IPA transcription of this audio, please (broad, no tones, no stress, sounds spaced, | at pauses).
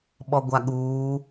ɓ ɔ ɡʷ a ɠ uː